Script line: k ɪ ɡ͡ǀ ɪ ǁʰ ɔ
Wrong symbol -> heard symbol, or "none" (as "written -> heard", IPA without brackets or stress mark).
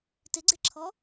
k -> t